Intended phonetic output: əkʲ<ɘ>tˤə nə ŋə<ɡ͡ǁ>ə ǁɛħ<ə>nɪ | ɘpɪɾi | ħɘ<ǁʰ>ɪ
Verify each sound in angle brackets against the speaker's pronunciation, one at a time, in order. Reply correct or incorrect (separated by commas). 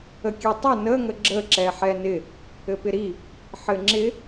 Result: incorrect, correct, incorrect, incorrect